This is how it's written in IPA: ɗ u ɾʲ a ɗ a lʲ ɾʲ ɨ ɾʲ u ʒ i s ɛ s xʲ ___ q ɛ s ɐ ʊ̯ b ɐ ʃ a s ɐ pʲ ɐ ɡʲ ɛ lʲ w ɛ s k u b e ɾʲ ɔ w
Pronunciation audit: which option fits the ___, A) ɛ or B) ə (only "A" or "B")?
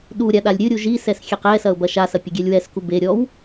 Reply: A